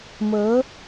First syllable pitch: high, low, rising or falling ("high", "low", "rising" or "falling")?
rising